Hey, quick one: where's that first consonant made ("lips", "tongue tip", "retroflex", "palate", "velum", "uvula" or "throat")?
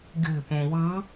velum